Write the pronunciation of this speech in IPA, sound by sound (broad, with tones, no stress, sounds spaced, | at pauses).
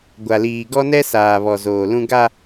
ɡʷ a˨ l iː˨ ɡ ɔ˦ n ɛ˦ s aː˨ β ɔ˨ z oː˨ l ũ˦ ɡ a˦